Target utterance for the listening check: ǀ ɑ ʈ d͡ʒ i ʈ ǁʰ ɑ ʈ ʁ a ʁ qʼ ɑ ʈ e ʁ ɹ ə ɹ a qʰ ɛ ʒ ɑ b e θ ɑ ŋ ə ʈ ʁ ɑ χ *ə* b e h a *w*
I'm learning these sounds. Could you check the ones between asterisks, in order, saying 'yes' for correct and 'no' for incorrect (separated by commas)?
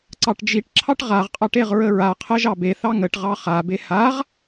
no, no